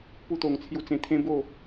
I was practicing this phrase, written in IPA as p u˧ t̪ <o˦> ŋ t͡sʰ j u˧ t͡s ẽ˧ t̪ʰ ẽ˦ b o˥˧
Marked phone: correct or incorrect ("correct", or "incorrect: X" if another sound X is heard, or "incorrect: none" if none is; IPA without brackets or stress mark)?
incorrect: o˨˩